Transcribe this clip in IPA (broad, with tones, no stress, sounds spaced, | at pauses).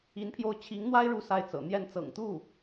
i˧˥ n pʰ j o˥˩ ʊ̯ t͡ɕʰ i˧˥ ŋ n̪ w a˥ ɪ̯ ɻ u˥˧ s a˥˩ ɪ̯ t͡s ɤ̰˨˩ n̪ j ɛ˥˩ n t͡s ɤ̰˨˩ ŋ t̪ u˥˩